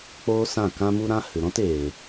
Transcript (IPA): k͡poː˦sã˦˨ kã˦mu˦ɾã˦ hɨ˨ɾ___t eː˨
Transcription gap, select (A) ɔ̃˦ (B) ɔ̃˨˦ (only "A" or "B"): A